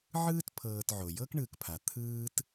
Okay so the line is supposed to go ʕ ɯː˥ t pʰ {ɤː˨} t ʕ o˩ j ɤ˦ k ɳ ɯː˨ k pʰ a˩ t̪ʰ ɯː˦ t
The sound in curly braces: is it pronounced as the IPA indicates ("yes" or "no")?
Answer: yes